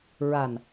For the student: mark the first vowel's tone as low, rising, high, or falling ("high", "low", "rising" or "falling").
low